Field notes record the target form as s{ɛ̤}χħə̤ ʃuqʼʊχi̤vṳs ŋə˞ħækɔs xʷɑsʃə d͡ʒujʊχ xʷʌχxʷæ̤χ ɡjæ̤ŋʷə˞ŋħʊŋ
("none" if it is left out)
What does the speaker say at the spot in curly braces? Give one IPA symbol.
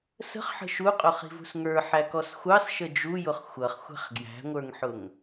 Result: ə̤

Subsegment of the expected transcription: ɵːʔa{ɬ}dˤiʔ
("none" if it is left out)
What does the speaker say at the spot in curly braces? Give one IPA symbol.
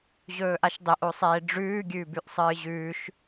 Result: ʃ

